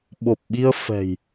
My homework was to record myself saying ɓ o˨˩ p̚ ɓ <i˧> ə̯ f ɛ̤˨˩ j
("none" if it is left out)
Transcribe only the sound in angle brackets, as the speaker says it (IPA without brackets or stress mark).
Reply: i˧